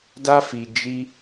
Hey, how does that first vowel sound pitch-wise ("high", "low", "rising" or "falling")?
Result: high